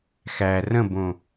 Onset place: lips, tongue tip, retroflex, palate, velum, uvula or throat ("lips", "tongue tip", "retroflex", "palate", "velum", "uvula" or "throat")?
velum